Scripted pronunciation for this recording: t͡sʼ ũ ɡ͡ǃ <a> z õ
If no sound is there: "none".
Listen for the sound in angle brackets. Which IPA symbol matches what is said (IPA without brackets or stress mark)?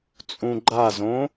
a